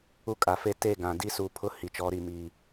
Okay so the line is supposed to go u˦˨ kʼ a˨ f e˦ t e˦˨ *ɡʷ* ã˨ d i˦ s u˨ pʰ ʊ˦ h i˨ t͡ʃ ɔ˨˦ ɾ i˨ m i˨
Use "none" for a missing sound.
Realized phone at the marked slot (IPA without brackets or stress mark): ɡ